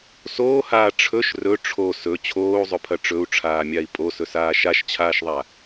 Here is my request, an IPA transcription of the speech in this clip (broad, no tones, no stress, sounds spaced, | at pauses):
s oː h aː ʈ͡ʂʰ ɵ ʃ r ɵ ʈ͡ʂʰ o s ɵ t͡ɕʰ oː u̯ zˤ ɵ pʰ ɐ ʈ͡ʂ ɵ u̯ ʈ͡ʂʰ aː mʲ a i̯ pʼ o s ɵ s aː ʃ a ʃ t͡ɕʰ aː ʃ ðˤ a